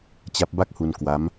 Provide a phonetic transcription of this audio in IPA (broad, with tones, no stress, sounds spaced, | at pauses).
t͡ɕ a˦˥ p̚ b a˥˩ k̚ h u˧ n k w a˦˥ m